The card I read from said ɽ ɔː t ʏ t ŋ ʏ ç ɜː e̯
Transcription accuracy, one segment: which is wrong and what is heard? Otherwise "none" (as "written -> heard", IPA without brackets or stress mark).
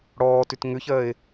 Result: none